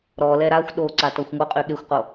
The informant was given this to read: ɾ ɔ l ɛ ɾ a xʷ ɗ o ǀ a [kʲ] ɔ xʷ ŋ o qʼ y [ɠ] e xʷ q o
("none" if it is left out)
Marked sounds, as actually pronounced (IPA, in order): t, ɠ

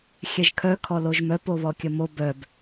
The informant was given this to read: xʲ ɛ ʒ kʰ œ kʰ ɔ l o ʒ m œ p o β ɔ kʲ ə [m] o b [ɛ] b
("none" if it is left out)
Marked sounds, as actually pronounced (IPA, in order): m, œ

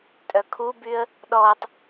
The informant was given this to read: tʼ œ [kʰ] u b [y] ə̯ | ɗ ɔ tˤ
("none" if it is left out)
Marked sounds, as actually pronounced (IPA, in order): kʰ, y

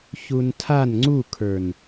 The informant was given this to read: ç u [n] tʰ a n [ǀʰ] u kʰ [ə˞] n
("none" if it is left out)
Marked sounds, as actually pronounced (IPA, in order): n, ŋ͡ǀ, ə˞

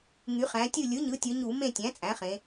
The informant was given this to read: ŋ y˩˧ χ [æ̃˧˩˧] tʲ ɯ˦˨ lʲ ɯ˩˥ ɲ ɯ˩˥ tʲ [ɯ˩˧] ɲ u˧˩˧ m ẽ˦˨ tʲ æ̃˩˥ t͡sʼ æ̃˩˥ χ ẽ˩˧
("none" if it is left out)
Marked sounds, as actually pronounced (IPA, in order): æ̃˩˧, ɯ˩˧

